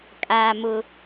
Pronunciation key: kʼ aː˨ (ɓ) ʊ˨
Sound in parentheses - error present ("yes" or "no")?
yes